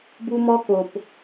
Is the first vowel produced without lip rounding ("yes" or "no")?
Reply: no